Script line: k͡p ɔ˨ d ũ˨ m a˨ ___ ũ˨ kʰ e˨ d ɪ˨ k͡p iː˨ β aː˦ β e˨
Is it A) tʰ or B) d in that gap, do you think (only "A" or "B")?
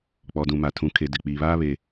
A